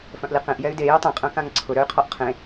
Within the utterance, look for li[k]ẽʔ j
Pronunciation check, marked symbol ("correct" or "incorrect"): incorrect